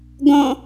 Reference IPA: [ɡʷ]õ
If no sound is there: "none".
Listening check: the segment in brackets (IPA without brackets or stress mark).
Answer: ɡ